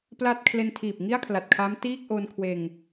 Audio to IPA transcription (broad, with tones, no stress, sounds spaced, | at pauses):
p l a˥˩ t̚ kʰ l e˧ n tʰ iː˨˩ p̚ ŋ i˥˩ a̯ kʰ l a˨˩ t̚ kʰ a˦˥ m t iː˥˩ k̚ ʔ o˧ n kʰ w eː˧ ŋ